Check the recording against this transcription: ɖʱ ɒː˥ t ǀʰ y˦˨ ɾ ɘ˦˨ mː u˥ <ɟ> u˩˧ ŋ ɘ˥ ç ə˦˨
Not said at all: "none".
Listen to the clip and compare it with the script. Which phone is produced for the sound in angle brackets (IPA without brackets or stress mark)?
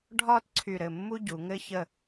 ɟ